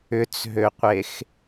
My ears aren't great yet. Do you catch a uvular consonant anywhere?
yes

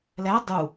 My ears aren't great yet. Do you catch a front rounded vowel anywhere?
no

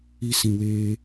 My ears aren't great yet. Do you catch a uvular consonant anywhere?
no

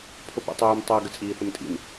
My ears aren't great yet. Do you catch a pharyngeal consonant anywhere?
no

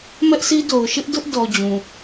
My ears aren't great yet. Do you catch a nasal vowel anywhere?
yes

